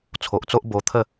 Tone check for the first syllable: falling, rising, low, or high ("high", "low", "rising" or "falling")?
low